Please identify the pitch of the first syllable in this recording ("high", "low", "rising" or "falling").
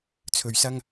low